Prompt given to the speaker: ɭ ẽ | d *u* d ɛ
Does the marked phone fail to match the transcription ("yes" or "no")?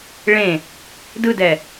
yes